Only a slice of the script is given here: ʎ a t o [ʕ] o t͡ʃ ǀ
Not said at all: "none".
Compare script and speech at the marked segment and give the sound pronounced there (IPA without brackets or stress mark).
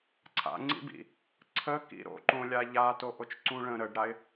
ʔ